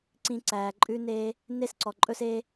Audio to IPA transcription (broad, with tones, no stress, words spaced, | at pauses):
ǀĩ˧ ǀæː˨ǃʼʉ˦neː˦ | ne˦sǀɔ˨ǃʼɵ˦se˦